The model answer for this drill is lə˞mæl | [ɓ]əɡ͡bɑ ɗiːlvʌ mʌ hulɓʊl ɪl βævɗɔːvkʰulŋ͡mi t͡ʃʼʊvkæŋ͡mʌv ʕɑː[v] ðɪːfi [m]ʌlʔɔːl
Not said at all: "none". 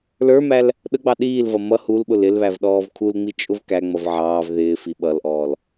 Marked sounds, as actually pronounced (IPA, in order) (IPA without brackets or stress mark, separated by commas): ɗ, v, ɓ